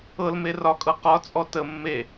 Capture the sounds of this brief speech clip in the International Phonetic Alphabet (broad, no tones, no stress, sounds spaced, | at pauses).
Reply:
ɤ l m e r ɒ kʼ ɤ q ɒ t͡sʼ ɔ t ə mː e